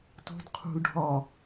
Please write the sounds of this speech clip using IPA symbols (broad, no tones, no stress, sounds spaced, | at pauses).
t o̤ d qʰ ṳ l ɖʱ ɒ